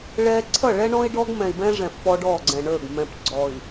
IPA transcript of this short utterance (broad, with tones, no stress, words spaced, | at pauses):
ɭɛ˦ ǀʰʌ˦˨ɭɛ˦ɳɔ̃˦i̯ ɖɔ˦ɡ mɛ̃˨i̯bɛ̃˦ʐɛ̃˨f pɔ˦ɖɔ˦˨ɡ͡ǀɛ̃˨ɳə˞˦˨ɡ mɛ̃˨p ɡ͡ǀɔ˨i̯